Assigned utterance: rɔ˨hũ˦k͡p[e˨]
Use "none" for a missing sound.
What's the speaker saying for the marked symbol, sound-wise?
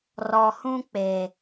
e˨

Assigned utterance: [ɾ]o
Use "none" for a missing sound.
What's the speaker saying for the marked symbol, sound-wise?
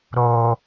ɾ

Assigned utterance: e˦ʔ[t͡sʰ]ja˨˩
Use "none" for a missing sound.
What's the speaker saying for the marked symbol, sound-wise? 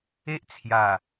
t͡sʰ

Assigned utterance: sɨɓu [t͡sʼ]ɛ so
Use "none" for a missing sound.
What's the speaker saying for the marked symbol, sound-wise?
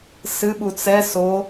t͡s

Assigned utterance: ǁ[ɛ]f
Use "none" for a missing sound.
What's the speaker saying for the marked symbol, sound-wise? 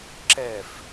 ɛ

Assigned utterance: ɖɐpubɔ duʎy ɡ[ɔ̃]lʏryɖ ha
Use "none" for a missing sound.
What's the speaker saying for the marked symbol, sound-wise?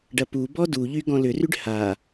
ɔ̃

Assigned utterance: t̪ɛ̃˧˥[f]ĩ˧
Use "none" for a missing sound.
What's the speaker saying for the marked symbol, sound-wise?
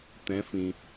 f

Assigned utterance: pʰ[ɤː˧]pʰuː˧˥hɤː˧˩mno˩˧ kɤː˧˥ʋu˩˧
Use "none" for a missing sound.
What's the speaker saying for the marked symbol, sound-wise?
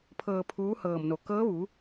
ɤː˧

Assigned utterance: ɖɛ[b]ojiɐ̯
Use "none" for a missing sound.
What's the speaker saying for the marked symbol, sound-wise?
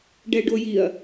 ɖ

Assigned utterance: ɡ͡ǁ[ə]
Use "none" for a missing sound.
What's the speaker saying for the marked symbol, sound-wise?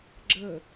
ə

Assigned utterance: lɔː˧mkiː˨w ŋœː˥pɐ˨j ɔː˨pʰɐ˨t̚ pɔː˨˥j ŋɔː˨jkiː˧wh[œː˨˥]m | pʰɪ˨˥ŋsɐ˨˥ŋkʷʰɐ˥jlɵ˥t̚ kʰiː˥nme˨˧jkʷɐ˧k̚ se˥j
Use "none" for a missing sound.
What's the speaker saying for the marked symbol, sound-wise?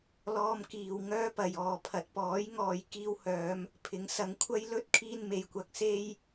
œː˨˧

